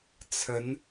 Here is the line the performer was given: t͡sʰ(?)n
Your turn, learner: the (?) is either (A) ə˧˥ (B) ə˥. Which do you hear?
A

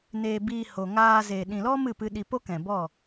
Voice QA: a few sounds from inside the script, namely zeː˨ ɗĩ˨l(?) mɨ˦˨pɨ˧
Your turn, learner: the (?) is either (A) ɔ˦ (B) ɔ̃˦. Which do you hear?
A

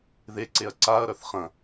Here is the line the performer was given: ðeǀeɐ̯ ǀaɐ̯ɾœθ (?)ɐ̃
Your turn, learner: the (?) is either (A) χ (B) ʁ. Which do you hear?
A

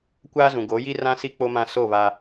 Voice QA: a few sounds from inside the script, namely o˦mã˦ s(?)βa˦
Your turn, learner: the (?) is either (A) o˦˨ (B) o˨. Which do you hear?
A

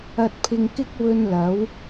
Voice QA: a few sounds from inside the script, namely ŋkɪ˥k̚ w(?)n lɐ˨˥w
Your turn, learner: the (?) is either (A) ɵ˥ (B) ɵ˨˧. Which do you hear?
A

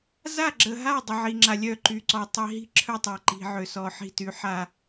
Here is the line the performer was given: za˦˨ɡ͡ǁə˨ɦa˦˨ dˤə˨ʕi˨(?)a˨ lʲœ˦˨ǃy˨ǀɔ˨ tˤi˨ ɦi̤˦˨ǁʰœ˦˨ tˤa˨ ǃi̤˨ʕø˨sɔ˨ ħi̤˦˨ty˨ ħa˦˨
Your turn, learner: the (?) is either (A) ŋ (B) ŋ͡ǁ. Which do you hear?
B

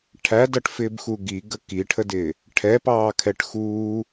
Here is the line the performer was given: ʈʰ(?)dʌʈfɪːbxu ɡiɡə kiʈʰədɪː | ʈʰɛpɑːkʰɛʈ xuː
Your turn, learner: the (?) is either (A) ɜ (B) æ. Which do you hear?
B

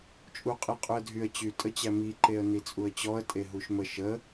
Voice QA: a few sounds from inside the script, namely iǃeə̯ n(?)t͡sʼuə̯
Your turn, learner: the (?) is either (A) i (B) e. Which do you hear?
A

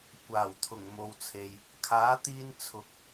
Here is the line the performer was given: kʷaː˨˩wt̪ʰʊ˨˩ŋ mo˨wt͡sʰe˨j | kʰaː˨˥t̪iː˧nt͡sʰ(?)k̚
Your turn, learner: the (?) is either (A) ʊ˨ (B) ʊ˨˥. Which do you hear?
B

